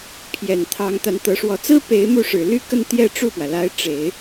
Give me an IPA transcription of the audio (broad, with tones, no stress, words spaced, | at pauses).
pʰjɛ˨˩nt̪ʰɑ˧˥ŋ t̪a˧˥nt̪ɤ˧˥ʂwɔ˧˥ t͡sɹ̩˥pe˧˥ɪ̯ mu˥˩ʂɻ̩˨˩ ly˥˧kə˥˧n t̪jɛ˥˧ ʈ͡ʂu˥˩pwä˩la˧˥ɪ̯ ʈ͡ʂe˨˩˦ɪ̯